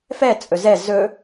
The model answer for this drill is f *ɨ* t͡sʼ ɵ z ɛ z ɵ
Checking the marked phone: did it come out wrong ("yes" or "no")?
yes